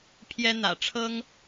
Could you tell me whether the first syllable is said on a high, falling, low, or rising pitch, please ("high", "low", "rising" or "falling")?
high